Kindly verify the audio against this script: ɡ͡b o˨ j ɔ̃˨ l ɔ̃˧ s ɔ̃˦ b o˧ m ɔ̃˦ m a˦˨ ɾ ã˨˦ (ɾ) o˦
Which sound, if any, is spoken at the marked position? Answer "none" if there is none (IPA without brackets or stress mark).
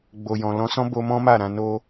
n